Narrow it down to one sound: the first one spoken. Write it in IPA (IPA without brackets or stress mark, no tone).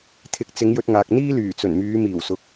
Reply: t̪ʰ